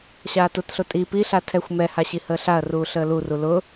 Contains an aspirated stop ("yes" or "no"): yes